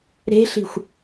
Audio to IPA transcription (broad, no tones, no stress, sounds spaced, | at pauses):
ɾ e̤ ɬ i̤ xʷ